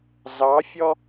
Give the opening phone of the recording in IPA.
z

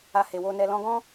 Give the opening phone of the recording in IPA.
a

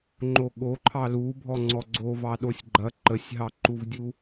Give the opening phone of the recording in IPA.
ŋ͡ǃ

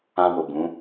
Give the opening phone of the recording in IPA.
ã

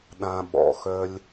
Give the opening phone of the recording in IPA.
ɗ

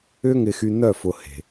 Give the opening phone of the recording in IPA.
ʏ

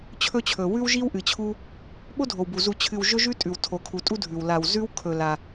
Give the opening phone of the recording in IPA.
t͡ɕʰ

